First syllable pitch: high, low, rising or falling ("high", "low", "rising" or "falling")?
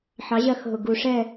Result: rising